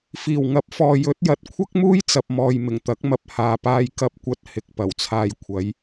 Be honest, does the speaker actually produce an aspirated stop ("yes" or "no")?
yes